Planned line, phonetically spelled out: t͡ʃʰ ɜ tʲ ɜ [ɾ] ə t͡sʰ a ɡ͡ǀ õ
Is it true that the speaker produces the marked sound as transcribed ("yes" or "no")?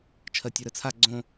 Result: yes